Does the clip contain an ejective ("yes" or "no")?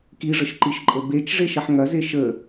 yes